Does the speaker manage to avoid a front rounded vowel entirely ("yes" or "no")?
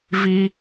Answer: yes